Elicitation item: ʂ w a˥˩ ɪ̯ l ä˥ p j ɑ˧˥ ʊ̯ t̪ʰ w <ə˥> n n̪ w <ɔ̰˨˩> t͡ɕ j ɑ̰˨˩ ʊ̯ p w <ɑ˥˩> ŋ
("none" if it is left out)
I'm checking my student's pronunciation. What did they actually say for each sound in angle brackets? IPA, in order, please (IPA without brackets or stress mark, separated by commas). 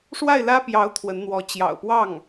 ə˧˥, ɔ˧˥, ɑ˥˩